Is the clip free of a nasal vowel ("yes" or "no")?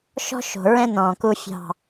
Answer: no